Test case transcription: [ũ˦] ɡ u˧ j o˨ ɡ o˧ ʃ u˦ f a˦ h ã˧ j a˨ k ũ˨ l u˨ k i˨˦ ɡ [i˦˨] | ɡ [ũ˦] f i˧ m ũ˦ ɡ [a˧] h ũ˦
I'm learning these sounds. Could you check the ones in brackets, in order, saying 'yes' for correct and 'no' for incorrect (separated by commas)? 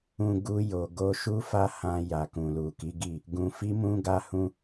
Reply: no, yes, no, no